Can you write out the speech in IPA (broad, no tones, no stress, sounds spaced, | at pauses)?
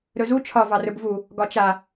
ɾ ɵ z u t͡ʃʰ ɒ v ɑ r ɵ b v u | ɡ ɒ t͡ʃ a